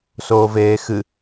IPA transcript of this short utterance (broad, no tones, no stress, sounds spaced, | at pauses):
s oː v eː x ɨ